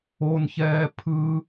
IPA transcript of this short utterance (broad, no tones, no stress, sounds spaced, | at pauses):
o n ç ɛː pʰ ɯ